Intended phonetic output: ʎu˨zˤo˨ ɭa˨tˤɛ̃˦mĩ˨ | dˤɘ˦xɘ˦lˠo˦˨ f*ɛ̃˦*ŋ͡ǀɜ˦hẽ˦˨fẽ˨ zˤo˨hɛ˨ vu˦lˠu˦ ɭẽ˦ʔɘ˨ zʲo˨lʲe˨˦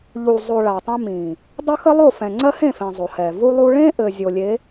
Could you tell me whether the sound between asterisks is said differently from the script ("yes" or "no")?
yes